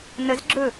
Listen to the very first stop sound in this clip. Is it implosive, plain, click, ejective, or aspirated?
click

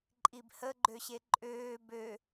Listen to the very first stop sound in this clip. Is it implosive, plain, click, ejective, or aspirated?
click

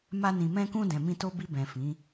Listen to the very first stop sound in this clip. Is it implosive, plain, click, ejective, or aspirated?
plain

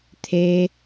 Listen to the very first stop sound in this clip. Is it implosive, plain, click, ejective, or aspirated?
aspirated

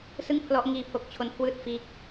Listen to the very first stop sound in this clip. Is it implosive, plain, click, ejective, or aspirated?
aspirated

